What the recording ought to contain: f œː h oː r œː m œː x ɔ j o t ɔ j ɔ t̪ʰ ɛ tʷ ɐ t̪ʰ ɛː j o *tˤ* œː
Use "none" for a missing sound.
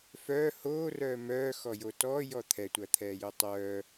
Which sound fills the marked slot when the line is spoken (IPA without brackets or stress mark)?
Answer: tˤ